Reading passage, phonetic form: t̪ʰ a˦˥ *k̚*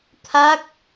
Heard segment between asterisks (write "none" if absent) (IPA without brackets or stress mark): k̚